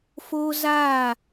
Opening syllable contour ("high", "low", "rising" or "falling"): high